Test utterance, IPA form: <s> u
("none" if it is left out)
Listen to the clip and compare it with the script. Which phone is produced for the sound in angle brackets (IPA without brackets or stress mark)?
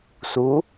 s